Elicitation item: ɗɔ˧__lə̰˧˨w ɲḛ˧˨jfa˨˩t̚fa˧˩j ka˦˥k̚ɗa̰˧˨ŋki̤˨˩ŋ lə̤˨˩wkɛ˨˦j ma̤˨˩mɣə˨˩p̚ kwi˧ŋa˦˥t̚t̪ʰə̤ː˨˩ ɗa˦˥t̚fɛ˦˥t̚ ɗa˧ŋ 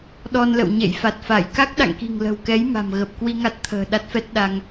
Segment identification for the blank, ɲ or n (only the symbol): n